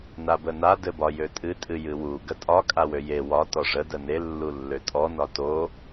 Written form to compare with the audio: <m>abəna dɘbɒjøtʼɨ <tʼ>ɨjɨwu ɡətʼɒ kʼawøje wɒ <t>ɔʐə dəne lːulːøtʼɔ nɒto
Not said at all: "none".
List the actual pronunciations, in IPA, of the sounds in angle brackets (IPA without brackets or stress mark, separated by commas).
n, tʼ, t